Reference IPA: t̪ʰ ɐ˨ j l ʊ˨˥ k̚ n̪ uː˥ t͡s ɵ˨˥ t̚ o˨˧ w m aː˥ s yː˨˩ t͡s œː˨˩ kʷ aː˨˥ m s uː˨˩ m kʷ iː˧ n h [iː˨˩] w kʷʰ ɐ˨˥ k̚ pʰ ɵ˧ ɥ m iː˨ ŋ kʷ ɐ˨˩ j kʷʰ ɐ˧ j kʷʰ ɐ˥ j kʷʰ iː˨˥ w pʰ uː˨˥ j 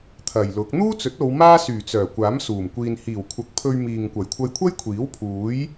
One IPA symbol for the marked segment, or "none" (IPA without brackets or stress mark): iː˨˩